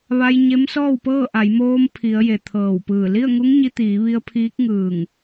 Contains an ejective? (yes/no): no